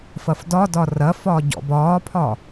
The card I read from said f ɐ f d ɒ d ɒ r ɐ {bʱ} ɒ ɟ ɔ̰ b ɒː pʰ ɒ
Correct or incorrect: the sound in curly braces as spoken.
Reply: incorrect: f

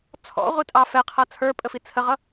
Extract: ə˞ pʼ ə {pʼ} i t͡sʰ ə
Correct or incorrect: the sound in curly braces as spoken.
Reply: incorrect: f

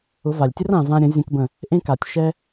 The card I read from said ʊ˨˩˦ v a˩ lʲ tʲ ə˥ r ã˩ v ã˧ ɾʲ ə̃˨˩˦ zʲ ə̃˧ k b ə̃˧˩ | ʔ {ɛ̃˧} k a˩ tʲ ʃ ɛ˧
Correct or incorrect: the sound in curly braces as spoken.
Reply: incorrect: ẽ˧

